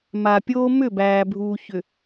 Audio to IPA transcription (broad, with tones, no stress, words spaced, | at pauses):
ma˨pʲoː˦ mʏ˦˨bæː˨bʱuː˨ çʏ˨